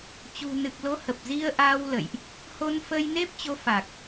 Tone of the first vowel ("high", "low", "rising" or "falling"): low